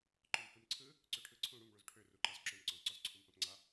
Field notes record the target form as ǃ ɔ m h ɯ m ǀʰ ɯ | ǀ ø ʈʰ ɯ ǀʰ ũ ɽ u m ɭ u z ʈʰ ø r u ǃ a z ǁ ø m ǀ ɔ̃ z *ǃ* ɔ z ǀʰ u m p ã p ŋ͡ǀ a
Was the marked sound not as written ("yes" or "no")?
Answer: yes